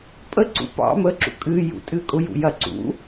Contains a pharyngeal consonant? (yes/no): no